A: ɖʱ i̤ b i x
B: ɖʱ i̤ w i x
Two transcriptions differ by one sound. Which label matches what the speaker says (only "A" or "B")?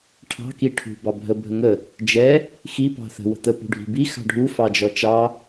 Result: A